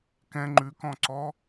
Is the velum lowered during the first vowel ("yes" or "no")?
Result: yes